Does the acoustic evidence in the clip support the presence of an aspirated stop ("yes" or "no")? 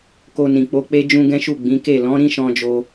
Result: no